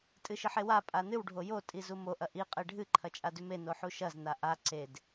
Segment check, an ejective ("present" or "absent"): present